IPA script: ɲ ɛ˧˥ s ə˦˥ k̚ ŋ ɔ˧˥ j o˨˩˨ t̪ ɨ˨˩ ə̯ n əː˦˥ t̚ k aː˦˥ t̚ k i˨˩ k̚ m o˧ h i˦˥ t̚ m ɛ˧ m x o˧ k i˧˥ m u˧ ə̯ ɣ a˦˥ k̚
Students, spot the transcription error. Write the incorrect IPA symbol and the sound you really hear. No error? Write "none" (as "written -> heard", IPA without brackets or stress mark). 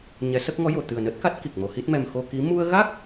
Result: aː˦˥ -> a˦˥